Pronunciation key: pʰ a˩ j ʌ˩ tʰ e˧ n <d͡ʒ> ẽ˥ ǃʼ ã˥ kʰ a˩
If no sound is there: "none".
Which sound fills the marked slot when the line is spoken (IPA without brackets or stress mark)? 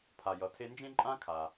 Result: d͡ʒ